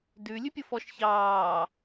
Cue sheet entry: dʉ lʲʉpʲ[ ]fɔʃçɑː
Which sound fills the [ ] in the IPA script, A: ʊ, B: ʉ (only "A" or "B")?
A